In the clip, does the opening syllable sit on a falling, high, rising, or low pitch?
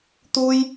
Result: high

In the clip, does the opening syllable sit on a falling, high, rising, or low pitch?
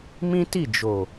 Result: high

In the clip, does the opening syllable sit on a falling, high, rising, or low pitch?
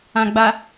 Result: low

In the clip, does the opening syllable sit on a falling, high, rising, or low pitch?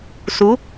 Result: rising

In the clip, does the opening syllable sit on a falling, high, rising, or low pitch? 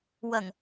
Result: low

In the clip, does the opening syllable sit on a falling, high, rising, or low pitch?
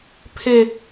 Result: falling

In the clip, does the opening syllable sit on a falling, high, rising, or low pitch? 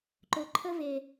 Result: low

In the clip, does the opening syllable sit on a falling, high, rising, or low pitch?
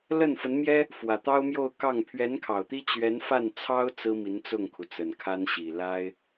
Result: falling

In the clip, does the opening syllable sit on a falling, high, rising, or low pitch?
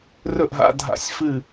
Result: falling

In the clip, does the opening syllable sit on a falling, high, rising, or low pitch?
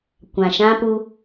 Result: low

